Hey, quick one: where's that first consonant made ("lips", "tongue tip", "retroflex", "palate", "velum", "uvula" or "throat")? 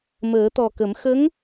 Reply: lips